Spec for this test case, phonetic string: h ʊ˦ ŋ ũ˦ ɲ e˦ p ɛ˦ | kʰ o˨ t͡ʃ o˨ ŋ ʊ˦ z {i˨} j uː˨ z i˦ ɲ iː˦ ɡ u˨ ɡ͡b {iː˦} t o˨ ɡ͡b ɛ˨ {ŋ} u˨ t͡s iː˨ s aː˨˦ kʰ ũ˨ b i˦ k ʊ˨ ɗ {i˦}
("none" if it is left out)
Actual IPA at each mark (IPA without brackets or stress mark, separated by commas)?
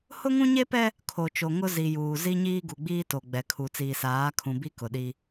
i˨, iː˦, kʰ, i˦